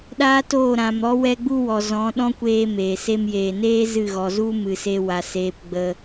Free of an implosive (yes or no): no